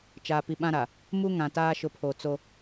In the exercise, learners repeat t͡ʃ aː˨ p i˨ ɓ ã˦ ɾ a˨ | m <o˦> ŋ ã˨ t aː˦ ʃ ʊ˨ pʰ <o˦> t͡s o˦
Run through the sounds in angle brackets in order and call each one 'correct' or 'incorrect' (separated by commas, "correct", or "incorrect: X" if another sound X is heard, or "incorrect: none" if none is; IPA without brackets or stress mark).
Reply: incorrect: u˦, incorrect: o˨